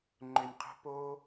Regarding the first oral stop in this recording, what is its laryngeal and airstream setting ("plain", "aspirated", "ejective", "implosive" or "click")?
click